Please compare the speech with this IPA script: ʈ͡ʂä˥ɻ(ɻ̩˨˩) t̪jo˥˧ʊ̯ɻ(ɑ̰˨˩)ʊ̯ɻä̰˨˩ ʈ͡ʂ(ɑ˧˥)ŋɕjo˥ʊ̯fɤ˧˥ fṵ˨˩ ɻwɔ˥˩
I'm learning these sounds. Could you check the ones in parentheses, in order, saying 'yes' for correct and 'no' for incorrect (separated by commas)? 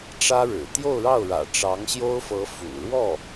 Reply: yes, no, yes